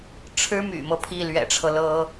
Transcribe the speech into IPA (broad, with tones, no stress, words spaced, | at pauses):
ʈ͡ʂʰɻ̩˥my̰˨˩mɤ˦ pʰi˥˩lɥɛ̰˨˩ʈ͡ʂʰɤ˦lɤ˥